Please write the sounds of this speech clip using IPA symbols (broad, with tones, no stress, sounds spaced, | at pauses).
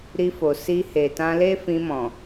ɾ i˧ f o˨ s i˧ h e˨ t ã˧ l e˦ f ĩ˧ m ɔ̃˨